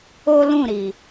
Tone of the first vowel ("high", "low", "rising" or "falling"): high